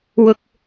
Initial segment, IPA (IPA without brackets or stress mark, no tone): w